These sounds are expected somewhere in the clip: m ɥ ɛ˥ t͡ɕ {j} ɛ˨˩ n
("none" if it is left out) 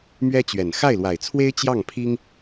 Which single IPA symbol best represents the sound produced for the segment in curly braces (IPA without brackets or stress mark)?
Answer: ɥ